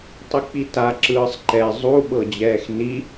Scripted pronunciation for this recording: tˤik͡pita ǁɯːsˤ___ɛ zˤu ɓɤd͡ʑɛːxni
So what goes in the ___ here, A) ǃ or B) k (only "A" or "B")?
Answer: A